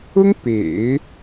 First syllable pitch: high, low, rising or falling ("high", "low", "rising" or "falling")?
high